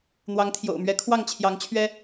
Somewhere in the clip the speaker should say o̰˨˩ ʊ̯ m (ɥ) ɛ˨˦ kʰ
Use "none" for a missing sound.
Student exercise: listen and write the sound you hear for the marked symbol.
ɥ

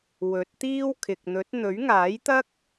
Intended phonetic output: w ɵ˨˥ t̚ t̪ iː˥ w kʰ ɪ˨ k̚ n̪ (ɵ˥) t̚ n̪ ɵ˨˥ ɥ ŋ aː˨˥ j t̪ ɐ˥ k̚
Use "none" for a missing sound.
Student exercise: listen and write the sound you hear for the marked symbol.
ɵ˨˥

